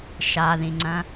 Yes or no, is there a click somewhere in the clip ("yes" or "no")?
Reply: yes